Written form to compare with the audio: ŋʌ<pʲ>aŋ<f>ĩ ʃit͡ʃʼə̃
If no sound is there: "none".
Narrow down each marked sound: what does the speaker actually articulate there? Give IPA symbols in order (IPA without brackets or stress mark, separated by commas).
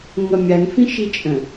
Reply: mʲ, f